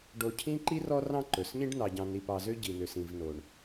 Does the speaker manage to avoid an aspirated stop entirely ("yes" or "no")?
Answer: no